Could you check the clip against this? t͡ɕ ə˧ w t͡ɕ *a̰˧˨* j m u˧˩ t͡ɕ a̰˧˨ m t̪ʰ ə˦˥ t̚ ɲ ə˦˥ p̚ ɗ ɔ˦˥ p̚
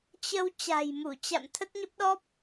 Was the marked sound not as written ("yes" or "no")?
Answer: yes